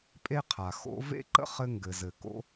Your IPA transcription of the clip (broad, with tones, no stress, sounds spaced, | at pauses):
pʼ e˥ qʰ a˩ x o̰˥ v ḛ˥ ǃ ə̰˥ χ ɘ˥ ŋ ɡ ɘ˩ z ɘ˩ k o̰˥